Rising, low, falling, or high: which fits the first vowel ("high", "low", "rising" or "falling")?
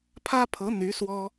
high